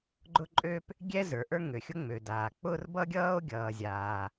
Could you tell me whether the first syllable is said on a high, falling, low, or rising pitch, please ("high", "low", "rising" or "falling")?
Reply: high